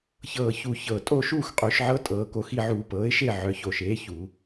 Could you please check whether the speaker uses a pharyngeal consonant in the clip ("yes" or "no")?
yes